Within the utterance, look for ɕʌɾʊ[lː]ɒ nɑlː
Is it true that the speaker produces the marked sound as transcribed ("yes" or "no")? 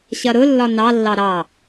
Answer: yes